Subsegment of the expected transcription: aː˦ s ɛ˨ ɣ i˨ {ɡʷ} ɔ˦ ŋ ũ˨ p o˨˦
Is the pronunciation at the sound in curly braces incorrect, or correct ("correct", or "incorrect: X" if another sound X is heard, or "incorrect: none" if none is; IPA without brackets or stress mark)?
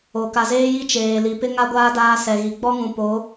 incorrect: ɡ͡b